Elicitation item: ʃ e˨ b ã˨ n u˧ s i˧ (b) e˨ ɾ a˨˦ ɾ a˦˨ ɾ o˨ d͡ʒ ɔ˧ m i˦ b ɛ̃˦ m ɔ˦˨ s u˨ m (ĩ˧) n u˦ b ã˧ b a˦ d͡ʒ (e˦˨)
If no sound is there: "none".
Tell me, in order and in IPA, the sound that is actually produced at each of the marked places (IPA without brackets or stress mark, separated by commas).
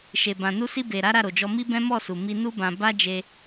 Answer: b, i˧, e˧